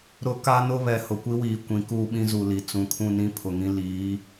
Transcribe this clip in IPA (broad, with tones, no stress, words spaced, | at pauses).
ɾʊ˦ ka˦nʊ˦βɛ˨ hʊ˨kʷi˦wiː˨ kʷĩ˨˦kuː˦ɓĩ˦ zu˨li˨ t͡sũ˨kʰũ˦˨nĩ˦ pʰʊ˨ŋĩ˦ liː˨˦